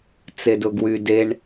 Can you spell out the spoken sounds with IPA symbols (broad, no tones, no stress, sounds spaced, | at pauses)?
t͡s e d ʊ ɡ w y d e ɳ